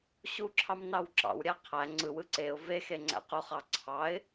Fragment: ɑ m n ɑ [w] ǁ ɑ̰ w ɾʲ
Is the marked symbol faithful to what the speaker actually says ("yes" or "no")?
yes